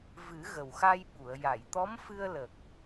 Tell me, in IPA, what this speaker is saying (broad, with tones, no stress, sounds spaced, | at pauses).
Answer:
v ɨ˨˩˦ ɣ ə˨˩ w x a˧ j ɓ u˨˩˨ ə̯ j a˨˩˨ j t̪ ɔ˧˥ m f ɨ˧ ə̯ l ə˨˩ k̚